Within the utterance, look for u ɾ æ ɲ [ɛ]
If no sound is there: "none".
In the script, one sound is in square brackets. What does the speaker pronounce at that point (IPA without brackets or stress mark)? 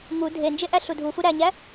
æ